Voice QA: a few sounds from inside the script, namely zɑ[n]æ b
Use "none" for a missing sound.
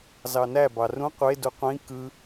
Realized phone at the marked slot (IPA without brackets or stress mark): n